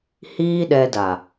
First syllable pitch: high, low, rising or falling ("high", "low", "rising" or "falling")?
high